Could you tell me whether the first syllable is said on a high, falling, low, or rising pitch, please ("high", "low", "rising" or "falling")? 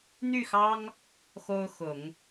falling